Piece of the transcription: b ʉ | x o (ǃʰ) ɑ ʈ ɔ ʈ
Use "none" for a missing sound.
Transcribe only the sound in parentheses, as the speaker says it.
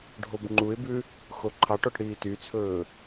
ǃʰ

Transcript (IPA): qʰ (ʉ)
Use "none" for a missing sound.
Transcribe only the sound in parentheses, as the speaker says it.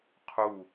u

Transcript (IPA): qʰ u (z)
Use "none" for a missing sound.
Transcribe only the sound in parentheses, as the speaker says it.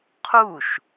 ʃ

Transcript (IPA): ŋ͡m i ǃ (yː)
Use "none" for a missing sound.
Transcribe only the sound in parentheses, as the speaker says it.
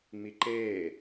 eː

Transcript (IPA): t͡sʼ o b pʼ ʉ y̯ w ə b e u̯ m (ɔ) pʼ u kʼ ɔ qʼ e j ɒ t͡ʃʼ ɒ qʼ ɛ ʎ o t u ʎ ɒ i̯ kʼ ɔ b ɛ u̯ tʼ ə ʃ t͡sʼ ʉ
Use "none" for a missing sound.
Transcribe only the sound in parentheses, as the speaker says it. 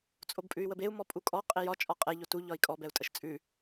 ɔ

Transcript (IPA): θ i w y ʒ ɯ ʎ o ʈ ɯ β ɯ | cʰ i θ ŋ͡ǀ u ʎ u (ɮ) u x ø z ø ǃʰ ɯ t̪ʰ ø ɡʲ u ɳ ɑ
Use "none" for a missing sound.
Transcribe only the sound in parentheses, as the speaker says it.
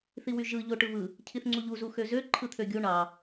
z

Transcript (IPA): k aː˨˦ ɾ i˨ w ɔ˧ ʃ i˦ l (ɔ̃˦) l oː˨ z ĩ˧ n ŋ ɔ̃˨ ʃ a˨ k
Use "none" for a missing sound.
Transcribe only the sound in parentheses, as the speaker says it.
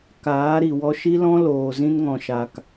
ɔ̃˦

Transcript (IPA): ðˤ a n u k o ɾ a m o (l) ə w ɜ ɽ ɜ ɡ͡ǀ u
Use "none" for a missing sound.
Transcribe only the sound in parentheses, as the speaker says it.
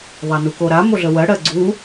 ɮ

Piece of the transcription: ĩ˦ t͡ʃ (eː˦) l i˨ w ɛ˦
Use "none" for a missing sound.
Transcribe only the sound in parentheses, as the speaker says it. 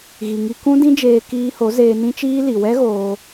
iː˦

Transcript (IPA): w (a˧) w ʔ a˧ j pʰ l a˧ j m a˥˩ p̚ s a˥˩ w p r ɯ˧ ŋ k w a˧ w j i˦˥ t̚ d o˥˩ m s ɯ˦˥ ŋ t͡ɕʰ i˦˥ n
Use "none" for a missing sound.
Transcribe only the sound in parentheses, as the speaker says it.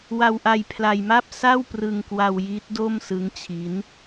a˧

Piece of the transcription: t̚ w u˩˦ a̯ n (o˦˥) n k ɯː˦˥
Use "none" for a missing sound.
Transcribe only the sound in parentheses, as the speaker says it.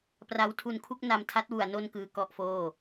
o˥˩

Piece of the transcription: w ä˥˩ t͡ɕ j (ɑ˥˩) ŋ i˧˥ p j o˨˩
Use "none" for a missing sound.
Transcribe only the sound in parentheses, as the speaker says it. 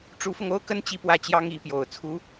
ɑ˥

